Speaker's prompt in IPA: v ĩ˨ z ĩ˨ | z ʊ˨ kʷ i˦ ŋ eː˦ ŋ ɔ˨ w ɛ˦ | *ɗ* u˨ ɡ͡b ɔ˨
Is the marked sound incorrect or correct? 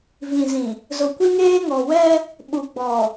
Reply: incorrect